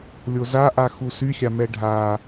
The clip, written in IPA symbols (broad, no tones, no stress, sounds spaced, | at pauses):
lʲ o z a ʔ a x u s y xʲ a m ɛ ɖʱ a